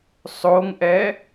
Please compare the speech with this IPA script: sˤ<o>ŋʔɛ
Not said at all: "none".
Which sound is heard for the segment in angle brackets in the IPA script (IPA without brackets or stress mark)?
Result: o